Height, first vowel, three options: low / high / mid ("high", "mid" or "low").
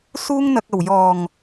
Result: high